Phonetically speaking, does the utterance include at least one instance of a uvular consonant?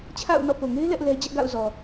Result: no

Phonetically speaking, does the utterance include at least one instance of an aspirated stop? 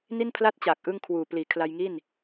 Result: yes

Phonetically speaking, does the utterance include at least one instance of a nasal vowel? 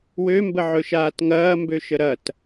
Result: no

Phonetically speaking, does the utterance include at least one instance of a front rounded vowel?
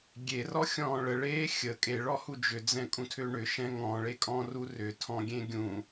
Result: yes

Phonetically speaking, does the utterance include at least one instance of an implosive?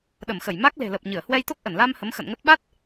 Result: yes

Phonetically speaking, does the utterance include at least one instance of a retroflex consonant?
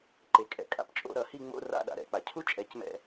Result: no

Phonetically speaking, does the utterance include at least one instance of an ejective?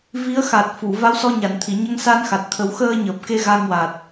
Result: no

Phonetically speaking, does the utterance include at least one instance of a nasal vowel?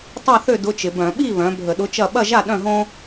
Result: yes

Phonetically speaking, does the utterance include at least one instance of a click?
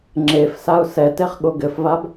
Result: yes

